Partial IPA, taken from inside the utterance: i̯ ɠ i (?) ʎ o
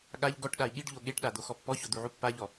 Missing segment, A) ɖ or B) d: A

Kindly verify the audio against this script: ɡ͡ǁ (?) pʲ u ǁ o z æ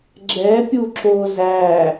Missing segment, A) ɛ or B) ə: A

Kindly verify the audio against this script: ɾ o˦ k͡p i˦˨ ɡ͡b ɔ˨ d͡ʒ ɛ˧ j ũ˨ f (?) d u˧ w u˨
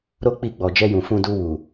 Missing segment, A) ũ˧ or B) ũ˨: A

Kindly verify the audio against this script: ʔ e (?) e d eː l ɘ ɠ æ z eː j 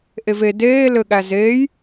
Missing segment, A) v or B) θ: A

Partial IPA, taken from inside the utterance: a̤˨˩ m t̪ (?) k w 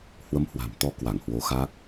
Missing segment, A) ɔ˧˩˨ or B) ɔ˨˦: B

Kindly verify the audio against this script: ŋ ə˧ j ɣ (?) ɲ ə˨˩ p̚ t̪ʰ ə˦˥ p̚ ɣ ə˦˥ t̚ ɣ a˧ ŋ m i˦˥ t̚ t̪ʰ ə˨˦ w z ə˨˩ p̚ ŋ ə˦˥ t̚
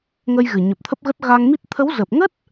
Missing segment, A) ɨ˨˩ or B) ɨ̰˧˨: A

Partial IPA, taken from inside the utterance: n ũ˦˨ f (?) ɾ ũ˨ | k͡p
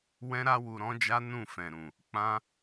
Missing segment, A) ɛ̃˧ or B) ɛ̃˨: B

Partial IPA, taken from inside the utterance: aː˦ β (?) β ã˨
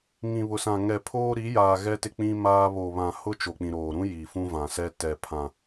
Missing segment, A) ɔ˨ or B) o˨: B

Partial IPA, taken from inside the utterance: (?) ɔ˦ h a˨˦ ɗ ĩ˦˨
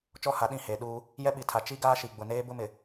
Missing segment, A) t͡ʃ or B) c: A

